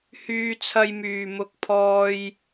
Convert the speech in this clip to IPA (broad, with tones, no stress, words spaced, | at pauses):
hyː˥t͡sʰɐ˥j myː˧mʊ˥k̚pʰɔː˥j